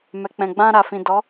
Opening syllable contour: low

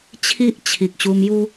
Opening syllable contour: high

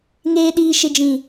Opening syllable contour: low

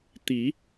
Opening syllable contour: rising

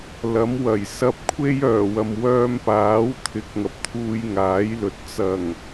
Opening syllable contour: rising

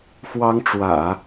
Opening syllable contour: high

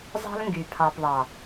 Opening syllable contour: high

